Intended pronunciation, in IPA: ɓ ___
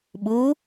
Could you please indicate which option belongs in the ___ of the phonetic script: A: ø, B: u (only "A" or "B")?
B